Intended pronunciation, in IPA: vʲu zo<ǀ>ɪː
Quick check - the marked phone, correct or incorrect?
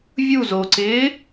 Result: correct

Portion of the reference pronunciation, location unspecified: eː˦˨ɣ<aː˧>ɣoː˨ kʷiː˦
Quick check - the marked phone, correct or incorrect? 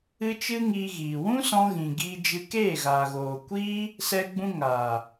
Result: incorrect: aː˨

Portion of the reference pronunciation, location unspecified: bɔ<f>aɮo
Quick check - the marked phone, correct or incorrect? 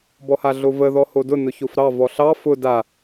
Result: incorrect: h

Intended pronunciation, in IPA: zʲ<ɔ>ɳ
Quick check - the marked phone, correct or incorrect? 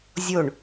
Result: incorrect: o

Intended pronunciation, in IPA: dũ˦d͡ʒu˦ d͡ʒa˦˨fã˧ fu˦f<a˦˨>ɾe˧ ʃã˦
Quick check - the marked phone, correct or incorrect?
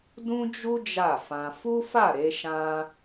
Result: correct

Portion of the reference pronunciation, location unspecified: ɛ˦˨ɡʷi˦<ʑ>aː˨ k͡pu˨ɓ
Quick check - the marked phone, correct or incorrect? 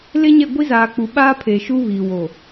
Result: incorrect: z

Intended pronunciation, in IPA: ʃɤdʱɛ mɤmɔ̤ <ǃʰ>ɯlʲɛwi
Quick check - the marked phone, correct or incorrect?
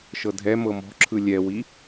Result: incorrect: ǁʰ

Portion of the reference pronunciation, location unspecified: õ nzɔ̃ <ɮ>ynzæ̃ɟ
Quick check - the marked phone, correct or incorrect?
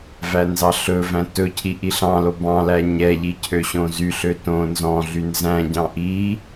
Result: correct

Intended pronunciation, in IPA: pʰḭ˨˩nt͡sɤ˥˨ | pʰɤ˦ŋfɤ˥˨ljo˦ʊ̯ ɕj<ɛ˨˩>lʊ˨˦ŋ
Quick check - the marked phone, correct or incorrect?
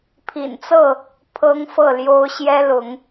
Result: incorrect: ɛ˦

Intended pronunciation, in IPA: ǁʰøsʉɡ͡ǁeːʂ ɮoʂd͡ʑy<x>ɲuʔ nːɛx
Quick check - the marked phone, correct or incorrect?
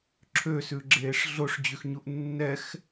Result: correct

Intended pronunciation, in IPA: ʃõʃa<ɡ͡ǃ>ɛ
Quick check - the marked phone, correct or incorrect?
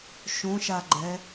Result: correct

